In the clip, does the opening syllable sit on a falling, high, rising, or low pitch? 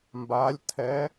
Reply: rising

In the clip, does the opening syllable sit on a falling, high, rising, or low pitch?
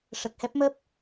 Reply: low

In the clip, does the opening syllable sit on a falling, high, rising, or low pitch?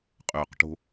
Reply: low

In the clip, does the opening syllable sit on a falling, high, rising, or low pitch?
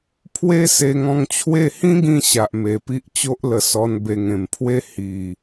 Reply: high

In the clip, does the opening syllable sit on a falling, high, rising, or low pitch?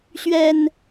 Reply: low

